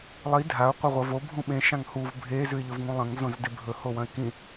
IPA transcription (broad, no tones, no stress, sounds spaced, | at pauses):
lˠ i dʱ a ʊ̯ qʷ e ʁʷ ɐ v o bʱ ũ ɓ ẽ ʃ ã ŋ h u v bʱ e z ʉ ɪ̯ ʎ ɵ v ŋ ũ lˠ ɐ̃ ŋ z õ z d e bʱ ɵ h o w ɐ̃ ɪ̯ k ĩ